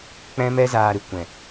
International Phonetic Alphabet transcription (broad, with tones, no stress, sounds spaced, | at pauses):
k͡p ɛ̃˦ m ɛ˦ z aː˧ ɾ ɨ˨ kʷ ɛ̃˨